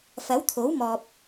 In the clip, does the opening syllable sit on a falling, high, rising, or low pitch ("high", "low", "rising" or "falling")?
rising